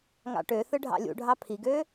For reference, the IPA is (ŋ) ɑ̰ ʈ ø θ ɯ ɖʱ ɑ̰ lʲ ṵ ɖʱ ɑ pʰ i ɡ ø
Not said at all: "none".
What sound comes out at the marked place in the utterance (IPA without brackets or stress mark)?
ŋ